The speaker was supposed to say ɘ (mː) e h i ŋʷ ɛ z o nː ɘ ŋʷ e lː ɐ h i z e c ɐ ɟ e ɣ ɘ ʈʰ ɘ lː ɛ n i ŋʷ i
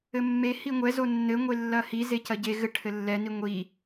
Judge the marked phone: correct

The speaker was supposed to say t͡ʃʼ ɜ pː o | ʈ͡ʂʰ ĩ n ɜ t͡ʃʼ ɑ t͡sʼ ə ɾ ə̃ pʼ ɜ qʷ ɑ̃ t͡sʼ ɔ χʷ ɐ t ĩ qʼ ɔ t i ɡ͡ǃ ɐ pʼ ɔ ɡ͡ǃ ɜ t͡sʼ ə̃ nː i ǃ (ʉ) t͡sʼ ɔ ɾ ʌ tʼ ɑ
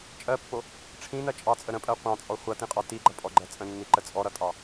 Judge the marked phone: incorrect: ə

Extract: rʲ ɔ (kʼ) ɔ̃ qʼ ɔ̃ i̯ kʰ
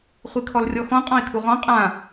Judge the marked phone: incorrect: x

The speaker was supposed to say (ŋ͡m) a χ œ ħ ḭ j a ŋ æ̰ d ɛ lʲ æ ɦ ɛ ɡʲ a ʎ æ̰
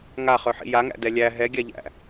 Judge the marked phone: incorrect: ŋ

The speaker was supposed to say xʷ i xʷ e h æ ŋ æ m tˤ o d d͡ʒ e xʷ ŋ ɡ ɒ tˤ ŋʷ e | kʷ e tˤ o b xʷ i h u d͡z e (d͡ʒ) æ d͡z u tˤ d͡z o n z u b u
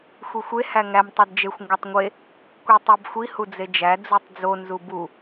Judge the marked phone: correct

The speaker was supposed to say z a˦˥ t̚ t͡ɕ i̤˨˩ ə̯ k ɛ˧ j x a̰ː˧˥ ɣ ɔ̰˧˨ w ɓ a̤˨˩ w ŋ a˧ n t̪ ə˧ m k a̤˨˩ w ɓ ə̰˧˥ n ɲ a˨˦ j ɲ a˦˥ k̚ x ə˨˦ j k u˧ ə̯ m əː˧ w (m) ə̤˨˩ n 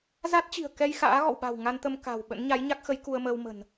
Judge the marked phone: correct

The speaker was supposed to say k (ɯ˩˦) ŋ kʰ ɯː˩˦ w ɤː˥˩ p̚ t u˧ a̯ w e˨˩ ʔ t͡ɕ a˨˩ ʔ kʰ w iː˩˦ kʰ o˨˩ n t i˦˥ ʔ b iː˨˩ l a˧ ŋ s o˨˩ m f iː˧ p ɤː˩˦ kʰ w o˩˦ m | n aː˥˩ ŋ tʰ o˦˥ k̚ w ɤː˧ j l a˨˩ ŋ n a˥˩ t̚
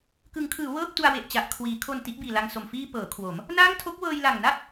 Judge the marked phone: correct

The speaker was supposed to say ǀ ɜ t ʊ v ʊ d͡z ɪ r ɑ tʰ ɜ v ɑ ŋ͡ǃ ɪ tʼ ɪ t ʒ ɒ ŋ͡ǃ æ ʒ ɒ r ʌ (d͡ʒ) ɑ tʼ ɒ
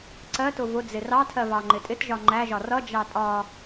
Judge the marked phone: correct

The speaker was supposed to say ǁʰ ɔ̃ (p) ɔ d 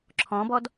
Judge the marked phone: incorrect: b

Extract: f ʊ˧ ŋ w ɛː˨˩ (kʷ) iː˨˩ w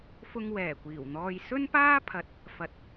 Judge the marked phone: correct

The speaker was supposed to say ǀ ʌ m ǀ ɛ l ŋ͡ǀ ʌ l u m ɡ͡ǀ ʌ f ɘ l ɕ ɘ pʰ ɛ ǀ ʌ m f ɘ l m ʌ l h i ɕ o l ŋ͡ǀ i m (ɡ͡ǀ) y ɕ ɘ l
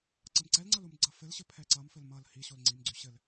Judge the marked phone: correct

